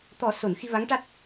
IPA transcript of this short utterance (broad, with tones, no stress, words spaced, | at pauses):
t̪ɔ˨˩˦so˨˩˨n xi˧va˧˥ŋ ʈa˦˥t̚